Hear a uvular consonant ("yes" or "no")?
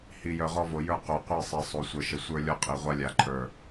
yes